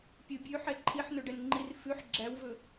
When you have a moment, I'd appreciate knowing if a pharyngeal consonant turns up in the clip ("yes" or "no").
yes